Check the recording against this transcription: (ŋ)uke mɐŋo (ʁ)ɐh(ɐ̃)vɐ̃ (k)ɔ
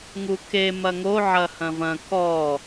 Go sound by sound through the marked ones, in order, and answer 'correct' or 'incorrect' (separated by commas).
correct, incorrect, correct, correct